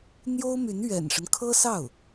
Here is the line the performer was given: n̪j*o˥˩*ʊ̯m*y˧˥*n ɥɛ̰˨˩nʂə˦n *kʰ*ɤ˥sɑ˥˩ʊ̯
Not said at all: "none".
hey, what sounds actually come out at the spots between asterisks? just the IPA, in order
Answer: o˥, y˧˥, kʰ

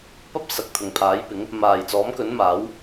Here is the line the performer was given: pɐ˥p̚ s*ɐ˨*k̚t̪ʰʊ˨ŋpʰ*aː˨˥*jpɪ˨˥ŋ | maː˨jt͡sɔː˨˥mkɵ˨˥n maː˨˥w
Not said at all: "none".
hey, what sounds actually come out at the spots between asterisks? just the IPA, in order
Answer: ɐ˨, aː˨˥

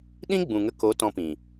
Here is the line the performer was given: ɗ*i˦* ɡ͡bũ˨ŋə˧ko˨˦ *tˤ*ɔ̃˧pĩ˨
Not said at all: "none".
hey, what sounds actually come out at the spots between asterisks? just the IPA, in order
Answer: ĩ˦, t

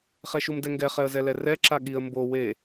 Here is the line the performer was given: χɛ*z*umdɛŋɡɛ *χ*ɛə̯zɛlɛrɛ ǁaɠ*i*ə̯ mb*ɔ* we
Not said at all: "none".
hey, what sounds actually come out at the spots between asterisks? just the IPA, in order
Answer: ʃ, χ, i, o

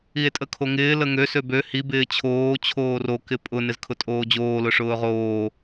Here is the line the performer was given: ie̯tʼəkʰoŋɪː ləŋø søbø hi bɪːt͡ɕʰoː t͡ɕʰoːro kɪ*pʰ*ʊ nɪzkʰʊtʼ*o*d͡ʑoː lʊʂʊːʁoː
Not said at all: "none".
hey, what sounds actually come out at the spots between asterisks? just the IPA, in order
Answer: pʼ, oː

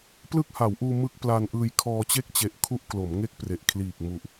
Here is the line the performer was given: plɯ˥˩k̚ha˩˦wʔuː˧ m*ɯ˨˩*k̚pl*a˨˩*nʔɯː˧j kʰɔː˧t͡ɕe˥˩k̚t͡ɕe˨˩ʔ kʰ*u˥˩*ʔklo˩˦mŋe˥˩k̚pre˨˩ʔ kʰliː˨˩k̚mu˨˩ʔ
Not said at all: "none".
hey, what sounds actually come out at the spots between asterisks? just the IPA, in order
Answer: ɯ˦˥, a˧, u˥˩

